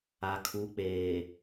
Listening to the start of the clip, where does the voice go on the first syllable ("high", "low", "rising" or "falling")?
low